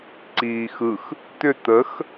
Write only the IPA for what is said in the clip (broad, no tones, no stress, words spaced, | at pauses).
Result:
ǀiːxɯx | t̪ʏ t̪əx